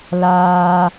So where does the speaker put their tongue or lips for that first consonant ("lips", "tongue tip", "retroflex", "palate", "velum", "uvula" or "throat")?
tongue tip